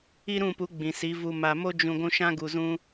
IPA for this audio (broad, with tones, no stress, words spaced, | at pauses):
i˦ɾũ˦˨pu˨˦ ɡ͡bĩ˨si˨˦vu˧ ma˨mo˦ d͡ʒũ˨ ɡʷũ˧ʃã˦ɡu˨zũ˧